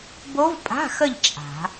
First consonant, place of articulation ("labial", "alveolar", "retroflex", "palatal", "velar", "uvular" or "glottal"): labial